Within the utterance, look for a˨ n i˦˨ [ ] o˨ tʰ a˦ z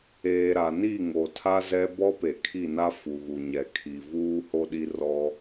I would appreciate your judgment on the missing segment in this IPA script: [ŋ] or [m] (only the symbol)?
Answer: ŋ